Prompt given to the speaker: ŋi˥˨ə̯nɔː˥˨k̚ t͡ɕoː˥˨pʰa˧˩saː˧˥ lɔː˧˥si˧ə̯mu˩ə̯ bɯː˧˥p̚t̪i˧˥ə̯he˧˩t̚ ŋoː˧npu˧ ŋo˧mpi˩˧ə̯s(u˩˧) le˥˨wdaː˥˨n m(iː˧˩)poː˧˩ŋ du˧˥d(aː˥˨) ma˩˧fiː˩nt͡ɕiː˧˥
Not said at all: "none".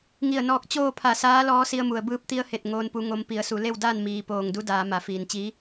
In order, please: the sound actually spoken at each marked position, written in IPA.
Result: u˩˧, iː˩˧, aː˩˧

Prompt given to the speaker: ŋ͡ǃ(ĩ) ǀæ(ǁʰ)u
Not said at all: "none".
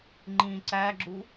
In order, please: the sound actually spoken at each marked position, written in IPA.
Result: ĩ, ɡ͡ǁ

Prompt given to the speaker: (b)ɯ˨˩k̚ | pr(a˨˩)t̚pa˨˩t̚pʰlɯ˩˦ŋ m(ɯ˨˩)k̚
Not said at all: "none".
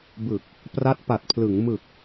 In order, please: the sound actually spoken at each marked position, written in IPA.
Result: b, a˦˥, ɯ˨˩

